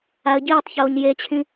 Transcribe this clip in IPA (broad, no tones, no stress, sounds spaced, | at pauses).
a ə̯ ɟ iː tˤ ç oː ɲ j e t͡ɕʰ ĩ